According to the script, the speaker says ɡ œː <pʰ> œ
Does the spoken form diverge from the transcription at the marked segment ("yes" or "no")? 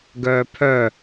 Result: no